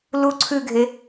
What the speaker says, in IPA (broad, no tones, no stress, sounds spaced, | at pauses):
l u ǀʰ ʉ ɡʱ e